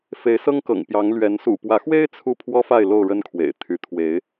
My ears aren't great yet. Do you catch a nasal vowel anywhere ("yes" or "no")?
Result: no